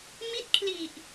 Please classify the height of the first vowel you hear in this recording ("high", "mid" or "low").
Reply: high